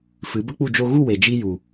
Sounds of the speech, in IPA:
fɨ˨˦bə˦k͡pu˦˨ d͡ʒo˧ɣu˦˨we˨ d͡ʒi˧ ju˨

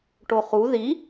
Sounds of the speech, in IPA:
ʈoχu ði

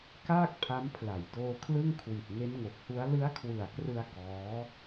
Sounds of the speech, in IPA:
kaː˥˩k̚pʰa˦˥mpʰla˨˩j doː˧kʰlɯ˥˩ŋ kʰwi˨˩t̚ŋe˦˥nŋo˨˩k̚hu˦˥a̯ lɯ˦˥a̯kʰwɯ˨˩a̯krɯ˧a̯ kɔː˦˥

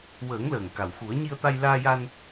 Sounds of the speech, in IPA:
wəː˨˩˦ŋ ləː˨˩ŋka˨˩w xu˨˩˦ə̯ ɲi˧ə̯t̪a˧j laː˧ja˧n

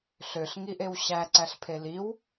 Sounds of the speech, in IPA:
ɬøɬ ŋiʔewɕæ ǀæɬpʰeliw

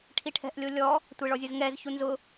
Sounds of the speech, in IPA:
ʈʰiʈʰɛ̤ʔlʲolʲɔ | tʷeɭɔzʲʊzŋɛz çunzʊ

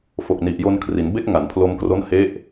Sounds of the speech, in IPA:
fo˨˩k̚ni˨˩ʔjo˧nkʰri˩˦n be˦˥k̚ŋa˩˦npʰlo˧mkro˦˥n he˦˥ʔ

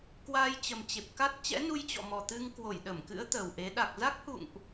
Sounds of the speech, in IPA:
kwaː˧jt͡ɕə˨˩mt͡ɕe˨˩p̚ ka˦˥t̚ t͡ɕɛ̰˧˥nu˧jt͡ɕɔ̰˧˨mɔ˨˩ t̪ɨ˧ŋkwo˧˩j ɗə˧˩mkɨ̰˧˥ə̯ t̪əː˨˩wʔe˨˦ ɗa˨˩k̚za˦˥k̚hṵ˧˨ŋʔ

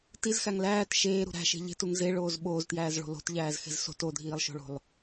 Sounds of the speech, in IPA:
tizxæŋ læːt ʃeːɾṳ ɾæ̤ʃe̤ ʎe̤tuŋ zeɭoːz ɓoːztjæːzɭo̤ lo̤tʎæːzxe̤z so̤t odʱiːlˠʃo̤ɭo̤lˠ

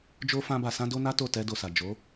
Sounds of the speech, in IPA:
d͡ʒo˧ fã˦ba˧ sã˦do˦na˦to˦˨ tɛ˧ do˨sa˨ d͡ʒo˨˦

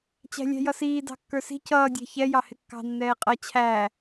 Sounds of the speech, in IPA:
t͡ɕæ̤lʲæ̤jʌsiː dɑ̤kːə˞si̤ cʌːdʲæ̤ çɛ jɑhɪkːɑ̤ nːɛːqʼʌ t͡ɕʰæ

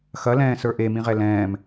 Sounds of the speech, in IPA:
xɐlɛ̃ːsə˞ ʔemĩʁɛ lɛ̃ːm

